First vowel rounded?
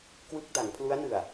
no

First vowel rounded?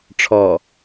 yes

